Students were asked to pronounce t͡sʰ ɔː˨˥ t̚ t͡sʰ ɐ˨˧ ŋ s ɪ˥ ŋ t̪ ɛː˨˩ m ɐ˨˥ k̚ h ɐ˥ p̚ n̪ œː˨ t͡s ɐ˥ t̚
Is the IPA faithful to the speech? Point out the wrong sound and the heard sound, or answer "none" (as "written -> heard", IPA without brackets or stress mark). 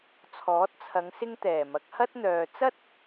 p̚ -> t̚